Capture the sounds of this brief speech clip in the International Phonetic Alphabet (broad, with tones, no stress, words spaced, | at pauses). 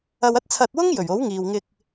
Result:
ɐ˧wɐ˥t̚ t͡sʰɐ˧t̚wʊ˥ŋ jɵ˨˩ɥo˨˥wŋiː˨wŋɪ˧k̚